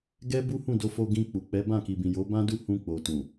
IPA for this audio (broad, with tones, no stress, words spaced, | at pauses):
ɡɛ˦bu˦hũ˦˨do˧ fo˧ɡĩ˧k͡pu˨ k͡pɛ˨˦bã˦˨ki˨bĩ˨ jo˨˦ bã˦du˦˨hũ˧ k͡po˨ tũ˨